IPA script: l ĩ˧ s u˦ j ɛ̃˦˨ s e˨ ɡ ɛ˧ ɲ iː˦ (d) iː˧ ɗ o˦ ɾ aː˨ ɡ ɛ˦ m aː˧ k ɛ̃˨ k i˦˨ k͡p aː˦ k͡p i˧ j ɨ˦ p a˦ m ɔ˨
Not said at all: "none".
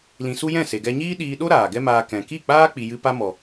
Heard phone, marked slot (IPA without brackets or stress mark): ɗ